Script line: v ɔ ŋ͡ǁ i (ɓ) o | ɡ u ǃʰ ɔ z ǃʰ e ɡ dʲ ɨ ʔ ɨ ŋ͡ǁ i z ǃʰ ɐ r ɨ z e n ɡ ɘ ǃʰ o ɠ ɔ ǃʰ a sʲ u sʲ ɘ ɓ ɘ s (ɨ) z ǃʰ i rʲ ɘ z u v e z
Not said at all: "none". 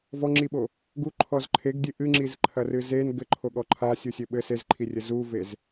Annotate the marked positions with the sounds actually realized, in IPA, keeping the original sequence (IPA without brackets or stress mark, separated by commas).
ɓ, e